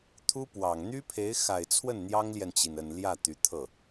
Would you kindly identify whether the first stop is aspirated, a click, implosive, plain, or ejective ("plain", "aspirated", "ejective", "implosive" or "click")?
aspirated